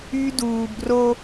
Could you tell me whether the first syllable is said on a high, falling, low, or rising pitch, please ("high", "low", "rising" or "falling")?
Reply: high